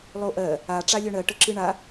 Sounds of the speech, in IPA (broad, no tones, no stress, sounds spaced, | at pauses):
lˠ o ʔ ɜ | a ʈ͡ʂ a lʲ œ ɳ ɜ ʈ ə ǁ ɨ ɳ a